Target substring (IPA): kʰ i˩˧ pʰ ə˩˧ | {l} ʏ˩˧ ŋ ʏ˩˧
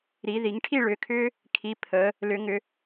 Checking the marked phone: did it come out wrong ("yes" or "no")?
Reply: no